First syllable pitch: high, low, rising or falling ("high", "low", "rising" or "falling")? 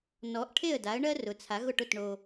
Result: rising